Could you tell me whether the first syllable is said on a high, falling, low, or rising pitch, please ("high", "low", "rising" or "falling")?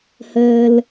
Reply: low